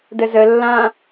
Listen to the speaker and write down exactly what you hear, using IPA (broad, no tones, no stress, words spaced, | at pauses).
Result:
dəzə lːã